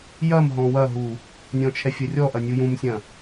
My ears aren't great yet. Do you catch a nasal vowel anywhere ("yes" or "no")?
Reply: yes